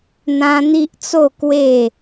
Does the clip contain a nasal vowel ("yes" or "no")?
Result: yes